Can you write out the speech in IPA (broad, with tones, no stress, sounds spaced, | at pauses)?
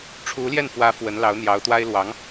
ʈ͡ʂʰ u˧˥ l j ɛ˥˩ n f w ä˧˥ f w ə˧˥ n l ɑ˧˥ ʊ̯ n̪ j ɑ˧˥ ʊ̯ t̪ w a˥ ɪ̯ l w ɑ˧˥ ŋ